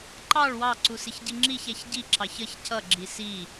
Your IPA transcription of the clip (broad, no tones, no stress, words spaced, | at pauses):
ǃɑɭ wɑ ǀusɪçɟiŋ͡ǁiç æçɟi ǁɑçʌç cʌ ɡ͡ǁisi